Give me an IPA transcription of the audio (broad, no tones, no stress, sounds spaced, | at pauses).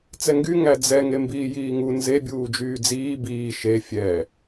t͡s ɛ ŋ ɡ y ŋ æ d͡z ɛ ŋ e m b iː j iː ŋ u n z e bʲ uː d͡ʒ yː d͡z iː b iː ʃ e fʲ ɛ